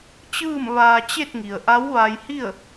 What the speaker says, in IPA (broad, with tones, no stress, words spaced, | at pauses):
t͡ɕɯː˥˨mʋaː˧ t͡ɕe˥˨t̚ŋi˩ə̯ʔa˧˥w ʋa˧jhi˥˨ə̯